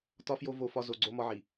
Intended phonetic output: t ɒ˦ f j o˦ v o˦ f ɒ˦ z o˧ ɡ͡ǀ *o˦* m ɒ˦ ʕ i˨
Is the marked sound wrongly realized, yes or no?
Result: no